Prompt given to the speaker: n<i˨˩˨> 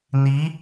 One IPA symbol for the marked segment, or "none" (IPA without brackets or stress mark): i˧˥